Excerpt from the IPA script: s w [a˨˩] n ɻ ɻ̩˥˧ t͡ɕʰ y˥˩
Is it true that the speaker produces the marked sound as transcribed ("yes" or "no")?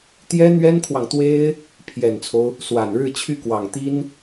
yes